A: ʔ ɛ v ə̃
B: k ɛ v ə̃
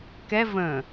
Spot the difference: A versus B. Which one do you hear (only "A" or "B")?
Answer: B